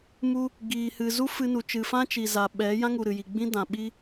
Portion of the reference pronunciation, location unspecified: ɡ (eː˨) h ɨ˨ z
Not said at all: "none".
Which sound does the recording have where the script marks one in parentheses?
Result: iː˨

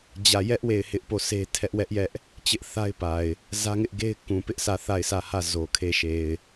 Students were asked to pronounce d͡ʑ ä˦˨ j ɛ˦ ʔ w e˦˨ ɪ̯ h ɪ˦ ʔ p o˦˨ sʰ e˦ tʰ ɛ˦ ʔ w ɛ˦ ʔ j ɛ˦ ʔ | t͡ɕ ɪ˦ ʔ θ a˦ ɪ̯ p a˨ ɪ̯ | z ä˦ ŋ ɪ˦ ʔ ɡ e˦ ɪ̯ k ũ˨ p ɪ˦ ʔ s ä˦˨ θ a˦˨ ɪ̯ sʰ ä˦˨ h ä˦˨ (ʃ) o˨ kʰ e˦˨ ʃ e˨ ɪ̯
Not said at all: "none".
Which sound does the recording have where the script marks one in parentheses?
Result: z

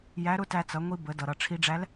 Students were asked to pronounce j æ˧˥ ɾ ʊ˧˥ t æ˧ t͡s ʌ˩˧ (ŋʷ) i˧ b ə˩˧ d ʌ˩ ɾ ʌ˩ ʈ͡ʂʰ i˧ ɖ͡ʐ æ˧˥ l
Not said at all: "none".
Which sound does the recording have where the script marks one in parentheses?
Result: ŋʷ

